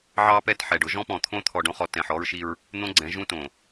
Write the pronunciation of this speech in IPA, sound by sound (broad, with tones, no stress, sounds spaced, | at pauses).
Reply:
ʕ ɑ˦ p ɛ˦ t ħ ɛ˨ ɖ ʊ˦ ʒ ɔ̃˦ p ɔ̃˨ t̪ʰ õ˦ t̪ʰ ɔ˨ ɖ õ˦ χ ɔ˨ t ɛ̃˨ ħ ɔ˦ ɹ ʃ i˦ ɹ | n̪ õ˦ ɡ͡ǀ ɛ̃˨˦ ʒ ũ˦ t õ˨